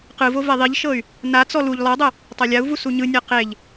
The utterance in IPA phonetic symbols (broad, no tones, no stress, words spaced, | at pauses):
qɯvo vɛðˤiʎʃɤy̯ | nat͡sɔ luʎ lˠɤdˤɛ | tˤalʲau̯vu suɲɯnʲa qeʎ